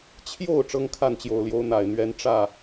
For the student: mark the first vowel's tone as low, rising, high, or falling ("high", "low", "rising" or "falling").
falling